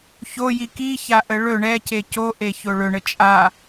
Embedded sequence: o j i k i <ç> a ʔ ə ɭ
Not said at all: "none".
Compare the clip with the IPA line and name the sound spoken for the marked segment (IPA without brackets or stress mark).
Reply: ç